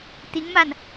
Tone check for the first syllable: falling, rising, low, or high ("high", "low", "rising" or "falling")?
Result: rising